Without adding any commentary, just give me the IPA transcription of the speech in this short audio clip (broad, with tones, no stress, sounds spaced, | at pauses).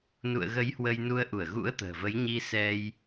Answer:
n ṵ˧˨ ə̯ ɣ ə˨˦ j h w ə˧ j n u˧ ə̯ ʔ u˧˩ ə̯ ɣ ṵ˧˥ ə̯ t̪ ə̤ː˨˩ v ə˨˦ j ɲ i˧ s ɛ˧ j